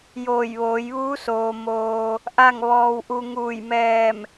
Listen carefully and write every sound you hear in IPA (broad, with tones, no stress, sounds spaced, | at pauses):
j oː˧˩ j ʋ oː˩˧ j ʋ uː˧˥ s oː˩ m oː˩ | ʔ a˥˨ ŋ ʋ ɔː˧ w ʔ u˧ ŋ uː˧˩ j m ɛː˧˩ m